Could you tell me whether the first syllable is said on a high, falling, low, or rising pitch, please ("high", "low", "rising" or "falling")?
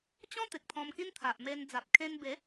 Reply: high